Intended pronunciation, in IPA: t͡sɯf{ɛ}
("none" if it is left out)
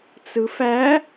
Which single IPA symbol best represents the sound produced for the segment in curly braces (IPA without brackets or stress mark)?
æ